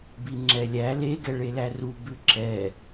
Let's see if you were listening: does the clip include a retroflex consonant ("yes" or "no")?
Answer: yes